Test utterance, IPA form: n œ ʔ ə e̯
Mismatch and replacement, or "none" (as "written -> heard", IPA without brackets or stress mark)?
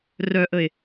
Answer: n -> r